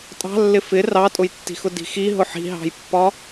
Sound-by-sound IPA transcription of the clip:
tʼ ɑ̤ lː ɪ f ɪ r ɑ tʼ ʊ j tː i̤ x ʊ d i̤ x i ɦ ʊ ħ i̤ ɦ ɑ̤ j pː ɒ

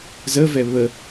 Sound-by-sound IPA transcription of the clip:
z ə v ɛ β ə

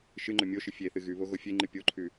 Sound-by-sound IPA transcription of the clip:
ʃ ɨ ŋ͡ǃ ɵ mʲ o ʃ ɨ fʲ e θ ɨ ɣ ʉ β o ɣ o fʲ e ŋ͡ǃ ɨ pʲ o ǃʰ ʉ

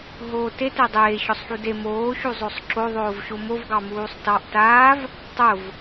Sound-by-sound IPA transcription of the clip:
ɦ oː t e t e dˤ eː ɕ ɔ sˤ ħ u d e m oː ɕ u zˤ o sˤ ǁ o ðˤ oː v ɕ o m o v ɡ ɑ m uː sˤ t ɑ ʔ t aː v | tˤ ʊ v

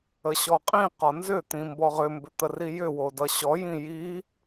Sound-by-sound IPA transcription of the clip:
ə ɕ ɔ qʼ ĩ q ɒ n z ʏ t̪ ĩ m b ɔ ʁ ʏ m b ʏ t̪ ə r i j ʏ w o d ʌ ɕ ɔ j ĩ j i

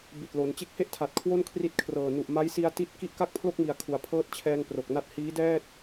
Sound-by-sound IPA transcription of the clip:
b i˨˩ t̚ l o˩˦ n t͡ɕ e˦˥ k̚ h e˥˩ ʔ tʰ a˨˩ t̚ kʰ w o˥˩ n kʰ r i˦˥ t̚ kʰ r ɤː˨˩ n u˨˩ ʔ m a˦˥ j s i˧ a̯ t i˥˩ t̚ k i˥˩ ʔ k a˥˩ k̚ pʰ l o˥˩ k̚ m i˨˩ a̯ kʰ u˩˦ a̯ pʰ ɤː˦˥ t̚ t͡ɕʰ ɛː˧ ŋ p r o˨˩ k̚ n a˦˥ t̚ h iː˦˥ d ɛː˥˩ t̚

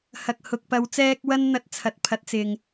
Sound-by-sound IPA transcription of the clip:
h ɐ˨ k̚ h ʊ˨ k̚ p ɐ˨˧ w t͡s ɛː˧ k̚ w ɐ˥ n n̪ ɐ˨˥ t̚ t͡sʰ ɐ˨˥ t̚ pʰ ɐ˨˥ t̚ t͡s ɪ˨ ŋ

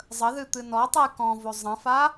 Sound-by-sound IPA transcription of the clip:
zˤ ə ð ɨ t̪ ɨ n ɔ tˤ ɨ j k ɔ̃ v o zˤ ə̃ f a

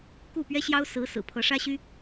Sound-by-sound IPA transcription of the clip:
k u˥˩ p ɥ ɛ˥ ɕ j ɑ˥ ʊ̯ s ɹ̩˧˥ s ɹ̩˨˩ pʰ ɤ˧˥ ʂ ä˥ ɕ y˥

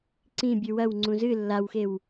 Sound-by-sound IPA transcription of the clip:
ǀ ĩ bʲ ʉ w ɐ w ŋ͡ǀ ũ z ɨ lː a w x e w

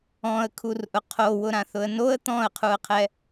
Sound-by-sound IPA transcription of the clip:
ɔ̃ ə̯ kʰ u r ʔ ʊ qʰ o w ʊ ɾ ã θ ʊ ə̯ n o ə̯ t̪ ɔ̃ ə̯ qʰ u ə̯ qʰ ɛ

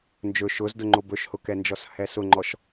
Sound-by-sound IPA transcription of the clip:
n d͡ʒ ɵ ʃ ʊ z d ʊ ŋ͡ǃ o b ɵ ʃ h ʊ k ɛ n d͡ʒ ɔ s h ɛ s ʊ ŋ͡ǃ ɔ ʃ

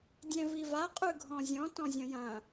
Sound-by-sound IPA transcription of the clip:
dʲ ɛ̃ v i v a qʼ ʉ ɡʱ ɔ̃ zʲ ɔ̃ t ɔ̃ zʲ ɐ̃ j ɐ̃

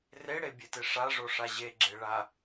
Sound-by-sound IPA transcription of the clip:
r e ɽ e bʲ e t e ʂ a ʐ o ʂ a ʑ e ɡ͡ǁ e ɭ a

